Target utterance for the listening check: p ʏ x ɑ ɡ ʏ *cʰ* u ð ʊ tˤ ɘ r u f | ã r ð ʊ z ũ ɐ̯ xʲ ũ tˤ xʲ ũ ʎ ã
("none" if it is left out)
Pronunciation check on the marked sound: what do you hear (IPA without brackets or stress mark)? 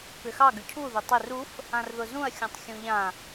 cʰ